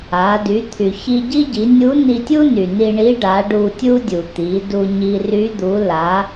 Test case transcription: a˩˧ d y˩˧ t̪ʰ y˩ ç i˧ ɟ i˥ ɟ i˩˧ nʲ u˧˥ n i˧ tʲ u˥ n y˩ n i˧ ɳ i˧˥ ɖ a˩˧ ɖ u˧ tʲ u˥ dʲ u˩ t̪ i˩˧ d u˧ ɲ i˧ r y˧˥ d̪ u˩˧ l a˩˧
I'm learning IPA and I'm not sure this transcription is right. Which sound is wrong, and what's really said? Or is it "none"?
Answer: none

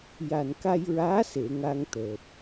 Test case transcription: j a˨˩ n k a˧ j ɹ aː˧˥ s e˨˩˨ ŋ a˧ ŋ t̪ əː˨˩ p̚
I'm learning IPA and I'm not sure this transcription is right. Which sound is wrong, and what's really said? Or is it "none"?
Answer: none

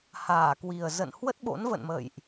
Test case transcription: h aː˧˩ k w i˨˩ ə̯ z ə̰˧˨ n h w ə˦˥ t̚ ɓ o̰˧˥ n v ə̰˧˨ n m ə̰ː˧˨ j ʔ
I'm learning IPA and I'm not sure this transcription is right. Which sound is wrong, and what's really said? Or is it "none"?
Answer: none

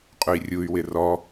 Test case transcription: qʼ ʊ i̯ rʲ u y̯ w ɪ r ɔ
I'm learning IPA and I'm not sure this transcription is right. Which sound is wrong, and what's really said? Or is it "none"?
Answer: none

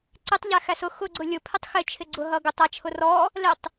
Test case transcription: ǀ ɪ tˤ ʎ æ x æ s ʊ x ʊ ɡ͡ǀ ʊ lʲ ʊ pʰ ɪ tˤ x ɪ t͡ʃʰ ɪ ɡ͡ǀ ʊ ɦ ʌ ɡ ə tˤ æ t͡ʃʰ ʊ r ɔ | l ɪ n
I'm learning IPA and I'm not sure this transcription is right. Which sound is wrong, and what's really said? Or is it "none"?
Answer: n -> tˤ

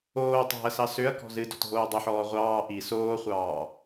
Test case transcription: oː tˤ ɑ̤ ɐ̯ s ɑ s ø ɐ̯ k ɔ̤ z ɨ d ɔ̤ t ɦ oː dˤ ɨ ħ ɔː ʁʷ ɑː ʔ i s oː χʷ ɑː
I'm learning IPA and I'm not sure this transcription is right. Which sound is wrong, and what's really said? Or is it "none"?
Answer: none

